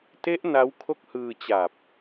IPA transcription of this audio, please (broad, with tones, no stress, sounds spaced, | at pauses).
t e˦˥ ʔ n a˦˥ w kʰ o˥˩ k̚ h ɯː˧ t͡ɕ a˨˩ p̚